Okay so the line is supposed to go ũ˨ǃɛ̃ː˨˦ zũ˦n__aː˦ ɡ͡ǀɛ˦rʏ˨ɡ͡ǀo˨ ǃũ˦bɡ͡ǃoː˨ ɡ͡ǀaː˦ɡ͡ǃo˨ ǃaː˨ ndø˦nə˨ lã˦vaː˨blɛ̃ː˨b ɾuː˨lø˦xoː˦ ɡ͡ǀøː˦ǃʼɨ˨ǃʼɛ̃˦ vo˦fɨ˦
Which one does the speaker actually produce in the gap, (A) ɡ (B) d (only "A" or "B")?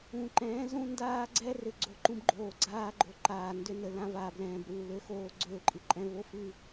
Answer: B